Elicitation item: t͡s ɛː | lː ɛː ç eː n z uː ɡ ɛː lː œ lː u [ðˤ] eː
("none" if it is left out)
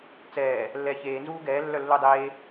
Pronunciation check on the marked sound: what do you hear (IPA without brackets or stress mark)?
dˤ